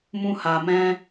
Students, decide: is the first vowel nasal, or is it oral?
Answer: nasal